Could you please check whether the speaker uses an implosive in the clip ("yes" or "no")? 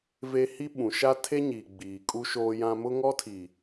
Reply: yes